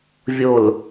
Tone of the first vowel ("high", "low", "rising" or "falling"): low